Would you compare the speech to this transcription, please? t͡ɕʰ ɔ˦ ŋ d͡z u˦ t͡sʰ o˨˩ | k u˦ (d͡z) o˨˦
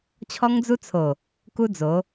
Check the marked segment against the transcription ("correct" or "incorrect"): correct